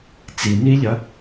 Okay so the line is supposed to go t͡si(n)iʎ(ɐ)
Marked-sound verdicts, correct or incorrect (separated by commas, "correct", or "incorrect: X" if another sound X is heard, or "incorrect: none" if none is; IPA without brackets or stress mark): correct, correct